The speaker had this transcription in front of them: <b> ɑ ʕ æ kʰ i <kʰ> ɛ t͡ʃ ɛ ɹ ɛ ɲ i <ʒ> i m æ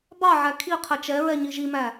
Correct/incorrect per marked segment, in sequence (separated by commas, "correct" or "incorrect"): correct, incorrect, correct